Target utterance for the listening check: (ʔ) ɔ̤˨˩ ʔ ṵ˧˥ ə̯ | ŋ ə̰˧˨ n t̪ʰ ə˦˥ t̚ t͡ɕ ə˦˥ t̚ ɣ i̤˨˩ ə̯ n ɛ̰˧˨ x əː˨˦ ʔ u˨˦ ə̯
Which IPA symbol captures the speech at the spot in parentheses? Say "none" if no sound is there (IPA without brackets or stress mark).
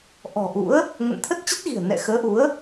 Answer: ʔ